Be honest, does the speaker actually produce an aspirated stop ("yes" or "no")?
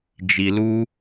no